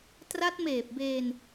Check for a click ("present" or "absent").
absent